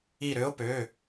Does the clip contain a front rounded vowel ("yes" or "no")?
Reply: yes